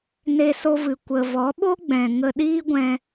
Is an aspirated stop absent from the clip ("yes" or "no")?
yes